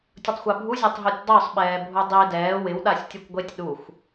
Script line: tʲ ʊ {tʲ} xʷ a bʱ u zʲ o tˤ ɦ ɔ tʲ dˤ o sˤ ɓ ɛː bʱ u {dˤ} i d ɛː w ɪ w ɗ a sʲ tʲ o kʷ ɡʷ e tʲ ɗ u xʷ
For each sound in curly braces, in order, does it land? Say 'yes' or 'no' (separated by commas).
no, yes